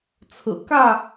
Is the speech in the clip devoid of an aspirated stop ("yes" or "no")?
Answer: no